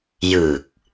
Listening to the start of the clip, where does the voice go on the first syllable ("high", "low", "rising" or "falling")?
low